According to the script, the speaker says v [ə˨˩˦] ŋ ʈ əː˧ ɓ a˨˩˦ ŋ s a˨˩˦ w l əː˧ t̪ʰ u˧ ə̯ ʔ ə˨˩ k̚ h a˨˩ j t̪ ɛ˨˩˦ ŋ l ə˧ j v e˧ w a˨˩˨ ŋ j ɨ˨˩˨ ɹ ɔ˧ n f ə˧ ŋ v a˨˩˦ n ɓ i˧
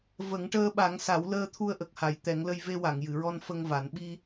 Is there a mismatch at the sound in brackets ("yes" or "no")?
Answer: no